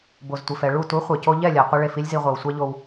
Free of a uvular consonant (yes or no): no